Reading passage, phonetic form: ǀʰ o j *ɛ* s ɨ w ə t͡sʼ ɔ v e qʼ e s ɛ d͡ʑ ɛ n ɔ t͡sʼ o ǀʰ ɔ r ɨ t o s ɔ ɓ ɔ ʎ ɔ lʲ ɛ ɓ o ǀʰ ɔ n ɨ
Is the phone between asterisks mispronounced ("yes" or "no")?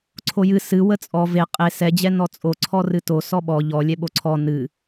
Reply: yes